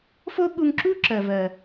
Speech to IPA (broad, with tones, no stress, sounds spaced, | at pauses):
f o˦ ɠ u˧ ŋ ǁ u˦ ǁ ɜ˨ v ɜ˨